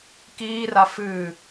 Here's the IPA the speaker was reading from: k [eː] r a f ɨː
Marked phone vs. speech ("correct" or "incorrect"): incorrect